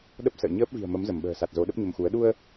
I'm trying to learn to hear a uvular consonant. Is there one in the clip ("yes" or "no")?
no